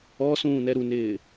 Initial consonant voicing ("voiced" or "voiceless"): voiceless